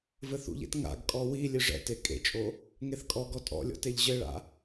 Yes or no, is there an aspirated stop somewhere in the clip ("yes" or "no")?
no